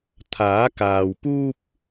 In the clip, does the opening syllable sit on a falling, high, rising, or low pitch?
rising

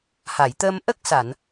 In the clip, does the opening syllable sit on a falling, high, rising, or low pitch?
low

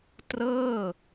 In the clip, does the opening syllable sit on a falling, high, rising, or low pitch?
falling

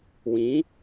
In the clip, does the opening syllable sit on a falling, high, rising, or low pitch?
rising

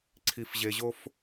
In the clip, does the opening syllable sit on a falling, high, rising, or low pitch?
low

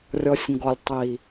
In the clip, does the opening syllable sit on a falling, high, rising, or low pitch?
low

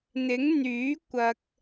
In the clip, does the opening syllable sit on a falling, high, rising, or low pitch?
rising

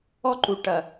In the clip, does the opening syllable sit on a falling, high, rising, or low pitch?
high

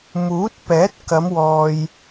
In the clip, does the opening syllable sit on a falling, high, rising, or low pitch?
rising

